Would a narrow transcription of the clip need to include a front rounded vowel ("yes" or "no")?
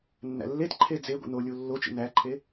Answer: no